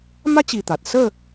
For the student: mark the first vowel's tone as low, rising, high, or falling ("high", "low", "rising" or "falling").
high